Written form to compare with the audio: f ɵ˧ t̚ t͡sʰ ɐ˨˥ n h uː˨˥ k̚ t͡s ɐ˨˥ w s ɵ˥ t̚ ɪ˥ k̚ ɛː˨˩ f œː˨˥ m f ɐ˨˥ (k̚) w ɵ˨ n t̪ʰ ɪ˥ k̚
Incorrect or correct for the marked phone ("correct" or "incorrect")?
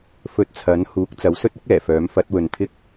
incorrect